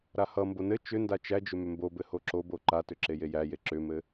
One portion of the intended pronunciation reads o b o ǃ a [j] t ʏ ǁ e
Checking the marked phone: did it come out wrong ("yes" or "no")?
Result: yes